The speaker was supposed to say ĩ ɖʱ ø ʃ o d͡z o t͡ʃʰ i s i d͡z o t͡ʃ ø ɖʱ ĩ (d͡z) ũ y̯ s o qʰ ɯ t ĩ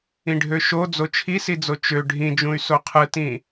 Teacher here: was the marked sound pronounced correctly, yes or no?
no